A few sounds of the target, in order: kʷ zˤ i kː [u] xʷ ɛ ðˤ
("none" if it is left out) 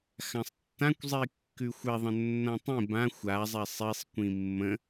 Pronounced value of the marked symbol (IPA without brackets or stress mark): ʉ